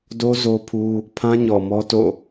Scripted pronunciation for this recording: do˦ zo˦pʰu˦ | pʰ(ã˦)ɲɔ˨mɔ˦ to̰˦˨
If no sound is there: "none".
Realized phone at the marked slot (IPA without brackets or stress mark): ã˦